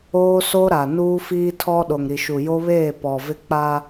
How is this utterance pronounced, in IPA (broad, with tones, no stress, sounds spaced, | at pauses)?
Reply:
oː˦ s o˦ ɾ a˨ n uː˦ f iː˦ tʰ ɔ˦ ɗ o˨ ŋ ɾ i˨ ʃ u˨ j o˦ β eː˦˨ p ɔ˨ v ɪ˦ k͡p aː˦